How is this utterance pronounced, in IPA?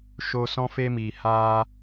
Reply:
ʃ o˧ s ɔ̃˧ f e˧ m iː˨ h aː˧

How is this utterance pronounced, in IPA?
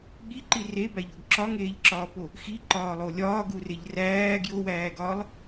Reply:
ɠ i ǃ i r e b æ ʎ o ɡ ǁ ɒ ŋ eː ʎ ǁ ɒː p o | x i ǃ ɒː lˠ o lʲ ɒː ɡ u r e ʎ r æː ɡ j o w æː ɡ ɒː lˠ

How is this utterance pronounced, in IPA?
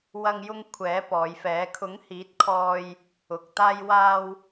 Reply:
w ɐ˧ ŋ j ʊ˧ ŋ kʷʰ ɛː˨˥ p ɔː˨˧ j f ɛː˨˥ kʰ ʊ˨˥ ŋ h iː˨˥ t̚ kʰ ɔː˧ j | ʊ˨ k̚ t̪ aː˧ j w aː˧ w

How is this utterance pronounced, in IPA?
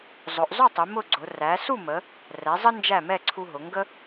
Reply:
zˤ ʊ˩˧ ʔ zˤ ʊ˥˨ tˤ ɪ˩˧ m ʊ˥˨ ɡ͡ǀ ʊ˩˧ r æ˩˧ s u˥˨ m ə˩˧ | r ɛ˩˧ zˤ ə˦ n d͡ʒ æ˥˨ m ɛ˥˨ ǀʰ u˦ ɦ ʊ˩˧ ŋ ɡ ə˦

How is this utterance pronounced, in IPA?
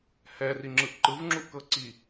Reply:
h ɛ r i ŋ͡ǁ ɯ ʔ ǃ ɯ v ŋ͡ǁ u ʔ k ɤ ǀ i

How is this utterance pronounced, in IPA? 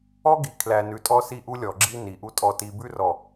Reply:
ɔ˦ ɡ i˨ kʰ l æ˨ n ʉ˨ tʼ ɔ˦ s i˦˨ ʔ u˦ lʲ ɔ˨ ɡ͡ǁ i˦ n i˨ ʔ u˦ tʼ ɔ˨ t i˨ b ʉ˦ r ɔ˨

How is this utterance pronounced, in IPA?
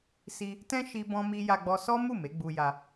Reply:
s i˧ | t ɛ̃˦ ʃ i˦ b ɔ̃˦ m i˦ j a˧ ɡ͡b ɔ˧ s ɔ˦ m u˦˨ m e˨˦ ɡ͡b u˧ j a˧

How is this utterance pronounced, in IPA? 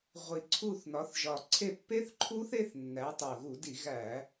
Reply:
ʁʷ i˨˩ ǀʰ u˦˨ θ n ɒ˨˦ θ ʒ ɒ˨˩ ǀʰ e˦˨ pː e˦˥ θ ǃʰ u˦˥ θ e˦˥ θ nː æ˨˦ tˤ o˨˩ ɣ u˧˩˧ d i˧˩˧ ɣ æ˧˩˧

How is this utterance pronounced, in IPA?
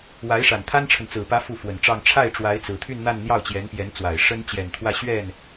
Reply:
w a˧˥ ɪ̯ ʂ a˨˩ n t̪ʰ a˥ n ʈ͡ʂʰ ə˨ n t͡s ɹ̩˨˩ p ä˧˥ f u˥˩ f w ə˨˩ n ʈ͡ʂ ɑ˥˧ ŋ ʈ͡ʂʰ a˥˩ ɪ̯ ʈ͡ʂ w a˧˥ ɪ̯ t͡s ɹ̩˨˩ t̪ʰ y˥˧ n n̪ a˥˧ n n̪ j ɑ˥˩ ʊ̯ t͡ɕ j ɛ˧˥ n p j ɛ˧˥ n t͡s w a˨˩ ɪ̯ ʂ ə˥ n t͡ɕ j ɛ˨˩ n t̪ʰ w ä˥˧ ɕ ɥ ɛ˥˩ n

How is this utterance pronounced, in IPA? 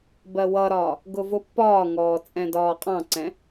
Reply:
b ɜ w ʌ ɾ ɒː | ɡ ʊ v ʊ pː ɒː ŋ ɔː t͡sʼ ɛ̃ d ɒː qʼ ɑ̃ ǀ ɛ̃

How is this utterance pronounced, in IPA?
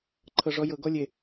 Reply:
ǃʰ ɤ ʐ ɔ j ɤ ɡ ɔ lʲ e

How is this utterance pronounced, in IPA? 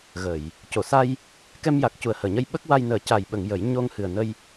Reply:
ɣ ə˨˩˨ j | c o˨˩˨ s a˧ j | k ɛ˧ m j a˨˩ k̚ c u˨˩ ə̯ h əː˨˩˨ ɲ ə˧ j ɓ ə˦˥ k̚ w a˧ j n əː˨˩˦ c a˨˩ j ɓ ə˨˩˨ ŋ j ə˨˩˦ j ɲ o˧ ŋ h ɨ˨˩ ə̯ n ə˧ j

